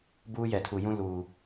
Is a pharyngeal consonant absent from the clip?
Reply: yes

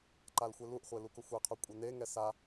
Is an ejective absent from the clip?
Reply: no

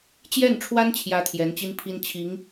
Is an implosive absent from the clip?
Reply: yes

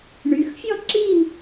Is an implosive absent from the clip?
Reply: yes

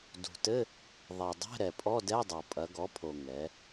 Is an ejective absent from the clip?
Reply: no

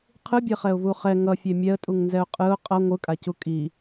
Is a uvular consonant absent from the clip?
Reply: no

